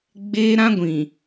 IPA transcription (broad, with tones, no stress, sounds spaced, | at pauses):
ɡ͡b eː˦ ɾ ã˦ ɡʷ ĩ˨